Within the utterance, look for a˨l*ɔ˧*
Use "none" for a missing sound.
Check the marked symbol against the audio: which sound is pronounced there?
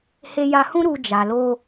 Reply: o˧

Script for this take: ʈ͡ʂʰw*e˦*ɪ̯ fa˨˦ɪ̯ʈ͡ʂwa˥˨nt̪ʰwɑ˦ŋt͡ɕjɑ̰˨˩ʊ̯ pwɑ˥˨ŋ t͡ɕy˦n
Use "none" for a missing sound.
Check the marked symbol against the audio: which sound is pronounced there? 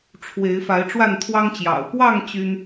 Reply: e˨˦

